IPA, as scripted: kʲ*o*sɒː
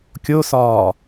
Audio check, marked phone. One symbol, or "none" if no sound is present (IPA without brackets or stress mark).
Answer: o